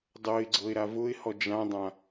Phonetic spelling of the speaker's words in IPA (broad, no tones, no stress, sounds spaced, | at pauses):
dˤ ɤ ɪ̯ ɡ͡ǀ ɤ ɪ̯ ɾ a v ʊ ɪ̯ h ɔ d͡ʒ ã dˤ ã